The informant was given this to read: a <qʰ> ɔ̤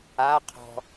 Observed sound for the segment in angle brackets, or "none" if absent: qʰ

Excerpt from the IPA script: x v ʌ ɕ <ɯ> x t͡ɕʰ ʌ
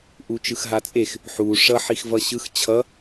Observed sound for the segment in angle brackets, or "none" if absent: ɯ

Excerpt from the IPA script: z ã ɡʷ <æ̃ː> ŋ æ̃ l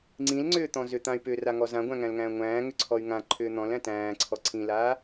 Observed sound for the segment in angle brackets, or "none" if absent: æ̃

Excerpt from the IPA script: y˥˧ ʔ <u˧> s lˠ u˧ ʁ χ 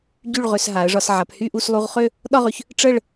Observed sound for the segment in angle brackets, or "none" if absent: u˥˧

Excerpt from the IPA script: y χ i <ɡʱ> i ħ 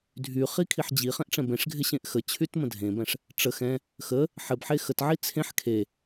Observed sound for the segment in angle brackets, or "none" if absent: kʰ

